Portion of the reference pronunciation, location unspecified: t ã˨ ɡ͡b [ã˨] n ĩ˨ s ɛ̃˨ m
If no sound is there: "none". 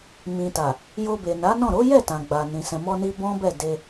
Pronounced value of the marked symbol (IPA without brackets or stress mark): a˨